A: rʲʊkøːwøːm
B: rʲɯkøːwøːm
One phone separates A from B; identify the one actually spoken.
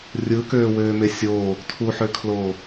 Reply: B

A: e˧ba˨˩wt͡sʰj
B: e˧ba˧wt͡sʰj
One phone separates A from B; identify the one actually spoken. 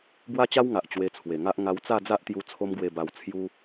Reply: B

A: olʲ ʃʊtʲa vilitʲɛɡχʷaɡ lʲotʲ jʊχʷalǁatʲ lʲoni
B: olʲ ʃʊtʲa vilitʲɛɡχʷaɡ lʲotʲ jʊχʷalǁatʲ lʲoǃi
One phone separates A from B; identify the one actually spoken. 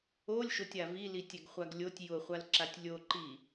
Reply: B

